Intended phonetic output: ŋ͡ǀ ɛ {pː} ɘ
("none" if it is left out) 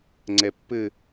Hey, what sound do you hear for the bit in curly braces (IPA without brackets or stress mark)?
pː